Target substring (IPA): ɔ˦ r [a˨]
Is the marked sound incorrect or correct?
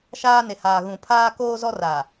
correct